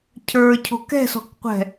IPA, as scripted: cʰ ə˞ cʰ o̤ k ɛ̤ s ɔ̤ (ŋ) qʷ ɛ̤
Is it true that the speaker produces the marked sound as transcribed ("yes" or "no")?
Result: no